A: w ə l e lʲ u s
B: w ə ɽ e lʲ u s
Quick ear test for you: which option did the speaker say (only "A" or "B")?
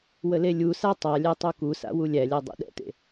A